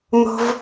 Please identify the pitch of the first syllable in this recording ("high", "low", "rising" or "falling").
high